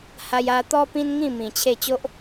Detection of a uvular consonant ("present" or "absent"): absent